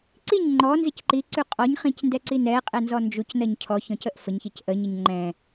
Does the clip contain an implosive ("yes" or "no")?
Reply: no